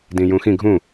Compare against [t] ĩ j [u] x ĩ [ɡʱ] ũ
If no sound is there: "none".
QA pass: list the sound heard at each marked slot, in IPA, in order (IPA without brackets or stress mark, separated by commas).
d, ũ, ɡʱ